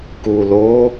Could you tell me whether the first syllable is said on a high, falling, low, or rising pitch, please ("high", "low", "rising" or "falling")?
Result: low